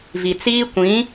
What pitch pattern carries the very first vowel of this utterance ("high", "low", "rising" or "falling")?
low